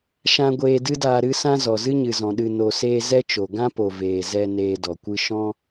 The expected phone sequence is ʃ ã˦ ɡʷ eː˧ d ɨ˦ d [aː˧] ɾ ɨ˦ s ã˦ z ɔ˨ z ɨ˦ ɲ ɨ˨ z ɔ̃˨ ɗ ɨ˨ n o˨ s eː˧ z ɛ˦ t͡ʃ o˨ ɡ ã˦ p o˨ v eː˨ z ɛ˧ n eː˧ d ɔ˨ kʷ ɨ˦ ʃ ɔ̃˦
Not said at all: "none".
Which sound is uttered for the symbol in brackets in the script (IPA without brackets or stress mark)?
aː˧